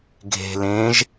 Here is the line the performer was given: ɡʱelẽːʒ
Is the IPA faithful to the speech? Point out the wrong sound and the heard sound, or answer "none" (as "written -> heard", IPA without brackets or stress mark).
e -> e̤